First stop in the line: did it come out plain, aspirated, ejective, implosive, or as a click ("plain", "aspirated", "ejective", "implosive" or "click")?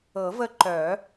click